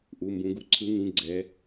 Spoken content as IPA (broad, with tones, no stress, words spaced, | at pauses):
ʔu˧˥˧mbũ˦˥ɡu˥˨ ǀʰɯ˦˥ŋĩ˧˥˧ ɡ͡ǀɛ˦˥